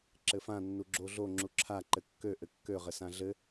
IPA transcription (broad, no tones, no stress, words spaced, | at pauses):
ǁɘfã nːuɡ͡ǁoɮo ŋ͡ǁuǁʰa ǃɘkːø ʔɘkːø ʁɘsãɮɘ